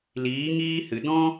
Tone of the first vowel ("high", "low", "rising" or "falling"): rising